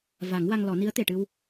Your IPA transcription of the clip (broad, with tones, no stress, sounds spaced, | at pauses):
v a˨˩˦ ŋ w a˧ ŋ l ɔ˨˩˦ n i˧˥ ə̯ t̪ e˨˩ ʈ ɨ˧ w